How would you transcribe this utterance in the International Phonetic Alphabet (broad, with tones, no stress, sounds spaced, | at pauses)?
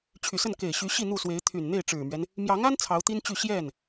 t͡ɕʰ y˨˩ s ə˥˩ n k e˨˩ ɪ̯ ɕ y˧˥ ɕ i˥˧ n̪ u˥˩ s w e˧˥ ɪ̯ t̪ʰ y˨˩ n n̪ e˥˩ ɪ̯ ʈ͡ʂ ɻ̩˨˩ m ɥ ɛ˦ n | m j ɑ˧˥ ŋ a˥ n t͡sʰ ɑ˧˥ ʊ̯ t̪ i˥ n t͡ɕ y˥˧ ɕ j ɛ˥˩ n